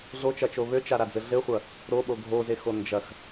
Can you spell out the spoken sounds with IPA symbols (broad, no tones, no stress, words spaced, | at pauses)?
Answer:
ɮot͡ʃɐt͡ʃo βøt͡ʃaɾad͡zɘ ɮɘχʷɐ | ɾoɓo ɡʱozexo nd͡ʒɐx